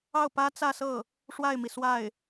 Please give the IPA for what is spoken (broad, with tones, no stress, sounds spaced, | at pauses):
ɑ˥˩ ʊ̯ p ä˥ t͡s ä˥˧ s ɤ˥˩ | ʂ w a˥˩ ɪ̯ m i˩ s w a˥˩ ɪ̯